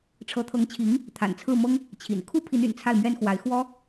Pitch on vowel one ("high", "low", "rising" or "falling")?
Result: rising